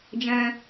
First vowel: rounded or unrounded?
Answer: unrounded